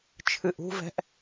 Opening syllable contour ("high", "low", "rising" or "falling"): low